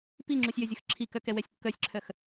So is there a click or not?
yes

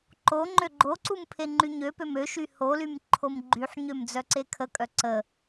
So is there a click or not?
yes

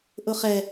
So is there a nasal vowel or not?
no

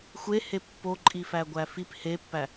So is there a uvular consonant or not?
no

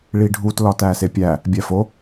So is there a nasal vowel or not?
no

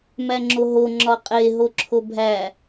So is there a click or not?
yes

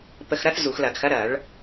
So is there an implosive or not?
no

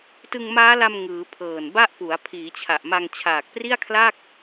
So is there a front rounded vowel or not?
no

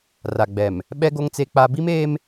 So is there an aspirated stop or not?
no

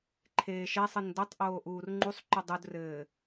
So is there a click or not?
yes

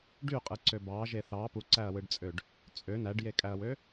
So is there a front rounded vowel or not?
yes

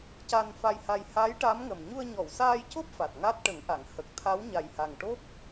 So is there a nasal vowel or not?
no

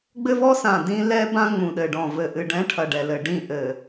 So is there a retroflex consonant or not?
yes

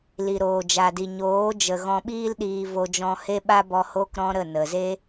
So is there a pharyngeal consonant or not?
no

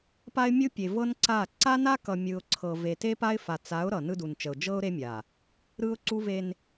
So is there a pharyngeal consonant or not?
no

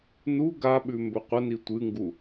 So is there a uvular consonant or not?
yes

